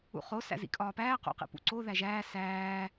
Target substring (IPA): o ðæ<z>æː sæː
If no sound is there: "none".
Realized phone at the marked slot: ʒ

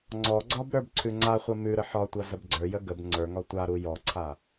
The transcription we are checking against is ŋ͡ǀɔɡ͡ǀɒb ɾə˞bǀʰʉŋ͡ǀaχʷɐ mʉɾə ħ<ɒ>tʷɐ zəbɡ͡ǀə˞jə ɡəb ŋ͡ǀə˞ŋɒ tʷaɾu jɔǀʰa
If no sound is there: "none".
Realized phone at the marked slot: ɒ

